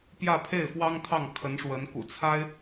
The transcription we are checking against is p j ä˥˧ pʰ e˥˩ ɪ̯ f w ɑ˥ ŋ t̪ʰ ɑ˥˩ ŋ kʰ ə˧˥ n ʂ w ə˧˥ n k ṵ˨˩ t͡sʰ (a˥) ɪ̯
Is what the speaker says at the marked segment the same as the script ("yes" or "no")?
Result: yes